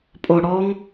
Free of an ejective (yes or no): no